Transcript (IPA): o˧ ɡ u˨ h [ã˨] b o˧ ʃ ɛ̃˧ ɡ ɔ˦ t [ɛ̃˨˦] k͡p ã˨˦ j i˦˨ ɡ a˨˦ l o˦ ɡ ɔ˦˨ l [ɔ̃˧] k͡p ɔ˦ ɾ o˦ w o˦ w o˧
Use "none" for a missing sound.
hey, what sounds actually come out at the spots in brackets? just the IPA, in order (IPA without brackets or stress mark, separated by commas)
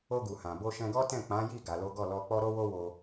ã˨, ɛ̃˦˨, ɔ˧